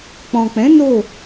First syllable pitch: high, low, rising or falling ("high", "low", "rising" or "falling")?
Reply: low